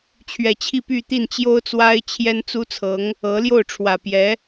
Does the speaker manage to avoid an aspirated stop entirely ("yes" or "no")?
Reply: no